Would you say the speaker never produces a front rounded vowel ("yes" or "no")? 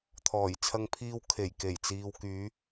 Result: no